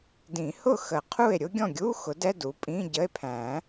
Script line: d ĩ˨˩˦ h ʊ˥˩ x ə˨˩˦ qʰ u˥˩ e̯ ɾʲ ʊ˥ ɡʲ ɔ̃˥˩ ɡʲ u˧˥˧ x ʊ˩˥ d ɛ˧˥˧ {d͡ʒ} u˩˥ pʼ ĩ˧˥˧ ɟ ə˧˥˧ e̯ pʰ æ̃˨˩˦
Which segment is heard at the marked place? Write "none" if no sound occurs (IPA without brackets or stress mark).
d